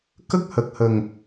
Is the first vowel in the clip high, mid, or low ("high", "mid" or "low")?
mid